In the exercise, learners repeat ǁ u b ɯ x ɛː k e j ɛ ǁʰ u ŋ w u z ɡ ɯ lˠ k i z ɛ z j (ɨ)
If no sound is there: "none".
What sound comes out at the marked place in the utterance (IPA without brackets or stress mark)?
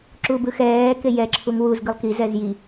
i